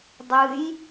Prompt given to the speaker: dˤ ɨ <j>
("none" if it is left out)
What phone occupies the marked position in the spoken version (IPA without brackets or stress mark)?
j